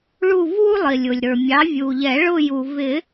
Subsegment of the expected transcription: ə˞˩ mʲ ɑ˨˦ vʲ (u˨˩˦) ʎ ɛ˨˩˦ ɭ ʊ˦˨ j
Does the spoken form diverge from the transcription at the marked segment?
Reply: yes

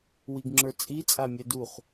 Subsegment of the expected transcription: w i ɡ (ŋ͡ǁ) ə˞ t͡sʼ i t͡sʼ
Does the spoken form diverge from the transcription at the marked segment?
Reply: no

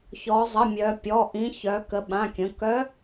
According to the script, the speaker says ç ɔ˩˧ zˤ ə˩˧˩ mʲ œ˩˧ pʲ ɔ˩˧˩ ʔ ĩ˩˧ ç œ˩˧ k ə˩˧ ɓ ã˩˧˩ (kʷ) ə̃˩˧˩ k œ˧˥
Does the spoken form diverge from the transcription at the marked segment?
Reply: yes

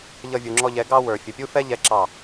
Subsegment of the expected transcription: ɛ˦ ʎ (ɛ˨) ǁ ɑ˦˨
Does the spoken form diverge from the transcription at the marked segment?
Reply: yes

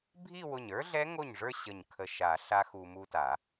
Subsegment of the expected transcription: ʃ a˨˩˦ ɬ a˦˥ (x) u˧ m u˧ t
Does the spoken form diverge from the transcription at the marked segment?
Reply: no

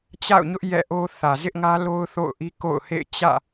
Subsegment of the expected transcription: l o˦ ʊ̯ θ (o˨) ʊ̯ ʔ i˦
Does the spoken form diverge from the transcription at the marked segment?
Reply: yes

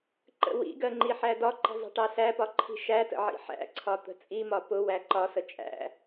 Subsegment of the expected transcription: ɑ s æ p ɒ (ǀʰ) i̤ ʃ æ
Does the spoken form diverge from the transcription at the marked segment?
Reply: yes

